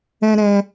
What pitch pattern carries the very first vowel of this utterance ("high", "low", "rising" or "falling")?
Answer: high